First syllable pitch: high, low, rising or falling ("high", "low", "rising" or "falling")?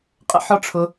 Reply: high